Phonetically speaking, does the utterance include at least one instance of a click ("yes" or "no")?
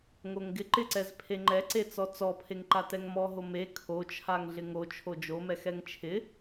yes